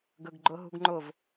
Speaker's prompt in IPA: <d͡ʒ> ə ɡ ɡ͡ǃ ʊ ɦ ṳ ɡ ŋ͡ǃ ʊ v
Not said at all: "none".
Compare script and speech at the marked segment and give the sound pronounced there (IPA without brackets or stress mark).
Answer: ɡ